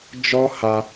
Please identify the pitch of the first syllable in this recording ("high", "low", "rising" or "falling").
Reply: high